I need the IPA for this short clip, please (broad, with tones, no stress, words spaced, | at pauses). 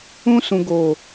ũ˧sũ˨ɡo˨